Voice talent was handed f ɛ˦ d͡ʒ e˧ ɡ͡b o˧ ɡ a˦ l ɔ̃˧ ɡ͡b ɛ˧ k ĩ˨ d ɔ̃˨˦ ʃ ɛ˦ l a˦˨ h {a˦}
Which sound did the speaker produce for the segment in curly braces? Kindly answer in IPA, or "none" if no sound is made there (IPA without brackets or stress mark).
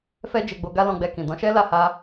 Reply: a˧